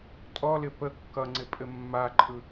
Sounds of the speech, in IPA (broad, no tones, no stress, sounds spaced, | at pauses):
tʼ ɔ l ɪ p ə kː ʌ ŋ͡ǀ ɪ pʼ ɘ mː a ǃʼ ɯ